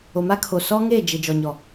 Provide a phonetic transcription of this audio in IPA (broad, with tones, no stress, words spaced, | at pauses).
o˨ma˦kʰo˨ sɔ˦ŋe˦˨d͡ʒɪ˨ d͡ʒɔ˨ɲɔ˨